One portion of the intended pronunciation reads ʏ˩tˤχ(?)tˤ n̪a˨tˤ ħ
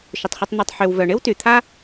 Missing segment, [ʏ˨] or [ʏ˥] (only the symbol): ʏ˨